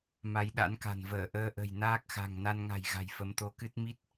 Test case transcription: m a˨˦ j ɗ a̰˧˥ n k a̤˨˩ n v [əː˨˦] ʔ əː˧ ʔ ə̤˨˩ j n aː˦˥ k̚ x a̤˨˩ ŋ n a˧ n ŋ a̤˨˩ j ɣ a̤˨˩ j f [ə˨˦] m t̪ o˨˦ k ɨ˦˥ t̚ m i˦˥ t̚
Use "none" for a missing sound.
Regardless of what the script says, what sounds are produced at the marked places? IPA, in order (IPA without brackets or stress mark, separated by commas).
əː˧˩, ə˨˦